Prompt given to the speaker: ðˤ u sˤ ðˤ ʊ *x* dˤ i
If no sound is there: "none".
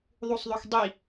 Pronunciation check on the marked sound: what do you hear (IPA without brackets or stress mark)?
x